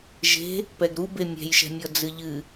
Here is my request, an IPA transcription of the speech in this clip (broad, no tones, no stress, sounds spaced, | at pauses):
ʒ e̤ | p ɛ ɡ ɾ u b e mʲ ɛ̤ j ʃ ɛ̤ mʲ ɔ d͡z ɨ ʎ ɨ